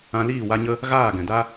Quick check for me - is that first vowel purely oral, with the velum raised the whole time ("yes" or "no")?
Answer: no